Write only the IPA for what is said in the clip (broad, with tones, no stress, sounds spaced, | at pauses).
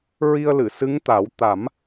ɹ i˧ ə̯ l ɨ˨˩˨ s ɨ˧˥ ŋ t̪ a˨˩˦ w t̪ a˨˩˦ m